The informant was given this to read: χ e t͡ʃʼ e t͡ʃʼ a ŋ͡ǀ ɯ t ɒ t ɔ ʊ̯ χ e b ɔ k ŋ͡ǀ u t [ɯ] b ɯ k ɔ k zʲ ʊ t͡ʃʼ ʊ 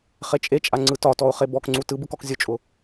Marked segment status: correct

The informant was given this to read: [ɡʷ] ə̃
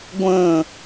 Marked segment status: correct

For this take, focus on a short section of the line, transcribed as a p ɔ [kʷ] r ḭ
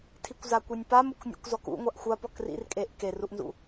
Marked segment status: incorrect: k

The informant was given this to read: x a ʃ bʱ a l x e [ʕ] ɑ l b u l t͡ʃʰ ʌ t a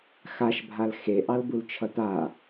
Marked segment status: incorrect: ʔ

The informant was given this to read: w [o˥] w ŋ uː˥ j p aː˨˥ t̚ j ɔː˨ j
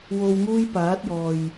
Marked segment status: incorrect: o˧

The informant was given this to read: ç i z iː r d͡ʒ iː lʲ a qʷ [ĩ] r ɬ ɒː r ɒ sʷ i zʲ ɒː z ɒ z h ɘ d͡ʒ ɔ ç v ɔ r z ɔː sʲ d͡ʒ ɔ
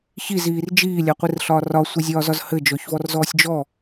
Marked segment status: incorrect: i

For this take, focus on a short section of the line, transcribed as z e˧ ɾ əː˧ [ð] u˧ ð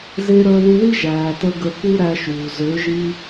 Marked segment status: correct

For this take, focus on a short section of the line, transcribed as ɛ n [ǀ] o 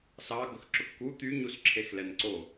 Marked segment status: correct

